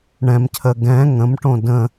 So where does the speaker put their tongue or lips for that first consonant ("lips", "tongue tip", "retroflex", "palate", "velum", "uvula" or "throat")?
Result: retroflex